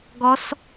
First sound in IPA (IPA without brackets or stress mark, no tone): ɡ